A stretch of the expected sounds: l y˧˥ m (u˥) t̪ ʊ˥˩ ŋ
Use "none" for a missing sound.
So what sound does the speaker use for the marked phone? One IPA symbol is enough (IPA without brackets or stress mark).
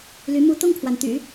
u˥